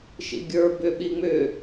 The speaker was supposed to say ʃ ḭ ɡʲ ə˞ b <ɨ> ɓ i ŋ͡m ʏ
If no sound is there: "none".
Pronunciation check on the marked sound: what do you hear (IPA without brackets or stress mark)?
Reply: ʏ